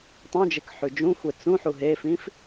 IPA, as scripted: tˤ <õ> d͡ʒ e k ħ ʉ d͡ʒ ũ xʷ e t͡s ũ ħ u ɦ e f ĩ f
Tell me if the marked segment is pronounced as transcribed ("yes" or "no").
no